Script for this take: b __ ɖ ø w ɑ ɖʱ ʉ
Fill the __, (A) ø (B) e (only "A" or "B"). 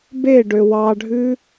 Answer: B